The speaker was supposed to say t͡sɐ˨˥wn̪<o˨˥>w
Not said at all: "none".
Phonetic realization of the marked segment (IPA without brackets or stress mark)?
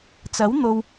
o˨